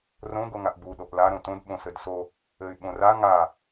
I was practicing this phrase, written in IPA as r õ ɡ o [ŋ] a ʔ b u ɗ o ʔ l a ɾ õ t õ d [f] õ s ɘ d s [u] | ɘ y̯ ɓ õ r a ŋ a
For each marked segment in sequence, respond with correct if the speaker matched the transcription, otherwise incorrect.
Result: correct, incorrect, incorrect

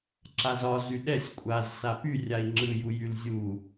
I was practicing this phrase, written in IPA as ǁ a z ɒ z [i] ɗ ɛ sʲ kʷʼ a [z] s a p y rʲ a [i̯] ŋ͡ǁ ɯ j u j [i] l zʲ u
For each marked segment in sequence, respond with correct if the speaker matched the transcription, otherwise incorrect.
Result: incorrect, correct, correct, incorrect

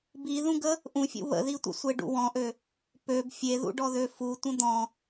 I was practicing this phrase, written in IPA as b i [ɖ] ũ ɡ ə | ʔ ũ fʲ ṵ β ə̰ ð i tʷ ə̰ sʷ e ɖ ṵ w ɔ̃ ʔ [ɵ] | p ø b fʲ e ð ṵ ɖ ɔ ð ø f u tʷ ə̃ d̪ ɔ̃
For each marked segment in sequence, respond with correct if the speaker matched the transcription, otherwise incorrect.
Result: incorrect, incorrect

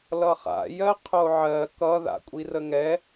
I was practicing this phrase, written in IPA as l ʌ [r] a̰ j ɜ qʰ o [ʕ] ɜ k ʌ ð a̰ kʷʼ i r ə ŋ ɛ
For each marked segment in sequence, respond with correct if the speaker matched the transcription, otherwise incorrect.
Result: incorrect, correct

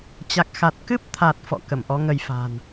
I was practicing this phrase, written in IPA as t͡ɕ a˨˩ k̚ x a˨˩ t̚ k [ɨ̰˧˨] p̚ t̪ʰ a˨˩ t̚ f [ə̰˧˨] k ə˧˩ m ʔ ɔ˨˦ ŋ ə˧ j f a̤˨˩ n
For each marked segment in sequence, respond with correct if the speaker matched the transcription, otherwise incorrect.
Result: incorrect, incorrect

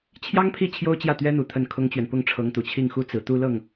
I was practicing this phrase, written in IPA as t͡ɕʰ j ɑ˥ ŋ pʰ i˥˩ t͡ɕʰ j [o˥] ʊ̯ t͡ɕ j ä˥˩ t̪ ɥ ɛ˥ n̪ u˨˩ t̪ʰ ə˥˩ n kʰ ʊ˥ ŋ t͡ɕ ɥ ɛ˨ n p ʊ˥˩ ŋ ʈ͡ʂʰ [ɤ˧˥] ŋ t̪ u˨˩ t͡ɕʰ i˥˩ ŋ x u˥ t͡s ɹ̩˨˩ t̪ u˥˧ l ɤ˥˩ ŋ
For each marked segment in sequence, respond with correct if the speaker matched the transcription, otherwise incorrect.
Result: correct, correct

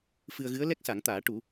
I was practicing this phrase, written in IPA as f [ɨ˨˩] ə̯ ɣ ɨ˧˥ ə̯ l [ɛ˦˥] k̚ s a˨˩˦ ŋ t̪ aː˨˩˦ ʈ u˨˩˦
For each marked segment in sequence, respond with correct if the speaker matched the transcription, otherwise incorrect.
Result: incorrect, correct

